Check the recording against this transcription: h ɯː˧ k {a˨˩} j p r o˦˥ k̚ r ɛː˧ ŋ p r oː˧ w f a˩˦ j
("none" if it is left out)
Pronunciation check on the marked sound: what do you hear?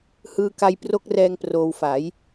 a˧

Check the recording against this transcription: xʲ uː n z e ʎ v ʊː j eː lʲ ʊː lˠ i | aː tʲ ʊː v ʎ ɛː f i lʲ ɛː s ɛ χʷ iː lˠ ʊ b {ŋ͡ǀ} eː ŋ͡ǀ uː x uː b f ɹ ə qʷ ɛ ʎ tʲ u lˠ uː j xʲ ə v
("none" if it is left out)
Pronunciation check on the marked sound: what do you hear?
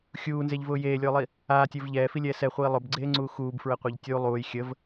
ɡ͡ǀ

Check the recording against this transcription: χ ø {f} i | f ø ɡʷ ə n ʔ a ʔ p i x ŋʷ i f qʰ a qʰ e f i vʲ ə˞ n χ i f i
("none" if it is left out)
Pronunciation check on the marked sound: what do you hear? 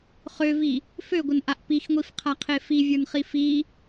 v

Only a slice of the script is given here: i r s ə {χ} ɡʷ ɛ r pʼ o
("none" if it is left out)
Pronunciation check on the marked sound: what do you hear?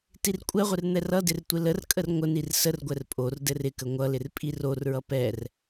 r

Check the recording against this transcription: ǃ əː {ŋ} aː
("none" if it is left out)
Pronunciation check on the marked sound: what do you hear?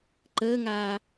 ŋ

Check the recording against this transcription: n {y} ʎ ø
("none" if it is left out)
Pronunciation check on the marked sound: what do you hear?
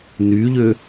y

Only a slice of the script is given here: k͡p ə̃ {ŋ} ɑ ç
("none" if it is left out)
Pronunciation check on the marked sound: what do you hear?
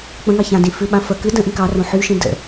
ŋ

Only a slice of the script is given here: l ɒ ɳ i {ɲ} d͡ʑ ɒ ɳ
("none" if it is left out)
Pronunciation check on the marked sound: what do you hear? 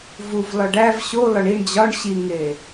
ɳ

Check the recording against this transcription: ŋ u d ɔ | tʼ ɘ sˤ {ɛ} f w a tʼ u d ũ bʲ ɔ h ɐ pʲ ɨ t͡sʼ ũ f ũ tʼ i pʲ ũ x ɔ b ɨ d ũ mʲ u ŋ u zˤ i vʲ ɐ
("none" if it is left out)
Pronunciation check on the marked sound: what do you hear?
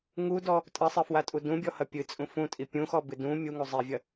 ɨ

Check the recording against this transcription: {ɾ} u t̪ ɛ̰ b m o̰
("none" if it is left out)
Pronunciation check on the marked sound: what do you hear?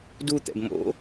d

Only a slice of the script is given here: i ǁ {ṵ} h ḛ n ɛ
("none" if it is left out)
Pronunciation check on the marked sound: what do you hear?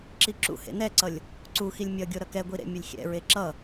ṵ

